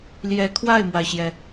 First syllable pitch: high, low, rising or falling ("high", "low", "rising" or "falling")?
rising